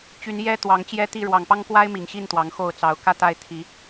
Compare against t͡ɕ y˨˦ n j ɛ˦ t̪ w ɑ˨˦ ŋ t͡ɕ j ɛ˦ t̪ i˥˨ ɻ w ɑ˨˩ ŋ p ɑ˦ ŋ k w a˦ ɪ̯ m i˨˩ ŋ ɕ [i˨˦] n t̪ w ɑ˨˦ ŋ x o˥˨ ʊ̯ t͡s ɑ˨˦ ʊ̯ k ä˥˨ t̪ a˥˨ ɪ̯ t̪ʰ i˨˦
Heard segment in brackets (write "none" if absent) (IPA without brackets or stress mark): i˥˨